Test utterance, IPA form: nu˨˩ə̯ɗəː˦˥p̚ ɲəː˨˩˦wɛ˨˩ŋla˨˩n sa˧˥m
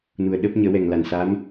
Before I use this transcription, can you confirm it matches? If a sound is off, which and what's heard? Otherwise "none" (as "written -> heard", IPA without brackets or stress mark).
none